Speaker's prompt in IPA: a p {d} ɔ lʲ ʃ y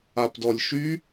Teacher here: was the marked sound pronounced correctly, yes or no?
yes